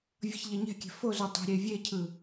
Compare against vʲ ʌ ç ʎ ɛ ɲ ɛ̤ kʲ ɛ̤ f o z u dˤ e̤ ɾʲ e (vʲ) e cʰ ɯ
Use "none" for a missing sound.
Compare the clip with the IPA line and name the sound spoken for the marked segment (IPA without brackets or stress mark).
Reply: vʲ